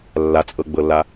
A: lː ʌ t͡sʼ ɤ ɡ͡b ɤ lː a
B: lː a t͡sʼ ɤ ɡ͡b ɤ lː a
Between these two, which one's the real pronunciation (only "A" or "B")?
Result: B